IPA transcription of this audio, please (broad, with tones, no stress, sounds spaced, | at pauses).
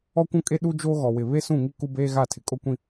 ɔ˦ kʷ ũ˦ kʼ e˦ ɗ u˦ d͡ʒ o˦ ɣ ɔ˨ w ɪ˨ β e˦ s ũ˦˨ ŋ i˦ k u˦ b eː˦ ɣ a˦˨ tʰ ɪ˨ kʼ o˦ kʷ ĩ˦